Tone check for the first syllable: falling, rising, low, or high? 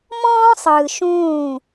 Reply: high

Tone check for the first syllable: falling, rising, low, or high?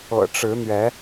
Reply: low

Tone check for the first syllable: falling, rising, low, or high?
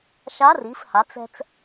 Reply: rising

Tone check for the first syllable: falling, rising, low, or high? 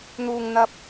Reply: low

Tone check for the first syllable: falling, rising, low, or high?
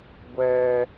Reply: high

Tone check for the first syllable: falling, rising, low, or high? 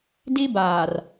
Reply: high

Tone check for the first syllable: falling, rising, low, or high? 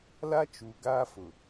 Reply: high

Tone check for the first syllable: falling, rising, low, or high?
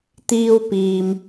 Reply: high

